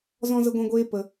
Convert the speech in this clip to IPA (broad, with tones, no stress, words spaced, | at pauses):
zɔ̃˦zə˦ɡʷɛ̃˦ɡʷeː˦ pə˧